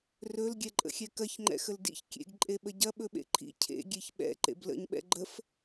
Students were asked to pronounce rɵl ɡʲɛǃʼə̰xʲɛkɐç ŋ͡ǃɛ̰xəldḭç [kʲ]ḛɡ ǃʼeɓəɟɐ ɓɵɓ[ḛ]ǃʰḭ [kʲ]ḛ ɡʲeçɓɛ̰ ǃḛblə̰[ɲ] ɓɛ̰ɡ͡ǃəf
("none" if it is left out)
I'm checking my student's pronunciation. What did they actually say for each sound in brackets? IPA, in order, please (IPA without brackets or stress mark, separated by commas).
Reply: kʲ, ḛ, cʰ, ɲ